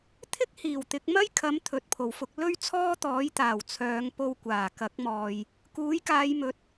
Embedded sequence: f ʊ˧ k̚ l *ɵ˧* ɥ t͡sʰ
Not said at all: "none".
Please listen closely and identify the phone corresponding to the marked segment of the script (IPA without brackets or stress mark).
ɵ˥